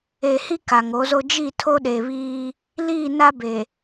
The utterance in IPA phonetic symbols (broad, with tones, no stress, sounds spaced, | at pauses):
e˨ h i˦ k a˨ ŋ o˨˦ z o˦ d͡ʒ i˦˨ tʰ o˦ ɗ e˨ β iː˦ | l iː˦˨ n a˦ b e˨